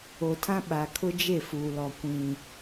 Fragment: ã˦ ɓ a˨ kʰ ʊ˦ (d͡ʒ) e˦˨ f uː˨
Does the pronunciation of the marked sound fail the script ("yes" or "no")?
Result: no